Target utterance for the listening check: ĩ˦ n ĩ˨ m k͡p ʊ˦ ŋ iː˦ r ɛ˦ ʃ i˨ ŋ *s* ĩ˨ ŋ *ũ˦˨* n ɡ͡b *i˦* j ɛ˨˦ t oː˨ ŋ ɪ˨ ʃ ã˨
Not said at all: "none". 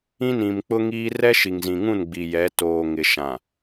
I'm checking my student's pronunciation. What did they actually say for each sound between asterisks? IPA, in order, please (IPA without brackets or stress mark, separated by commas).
z, ũ˦˨, i˨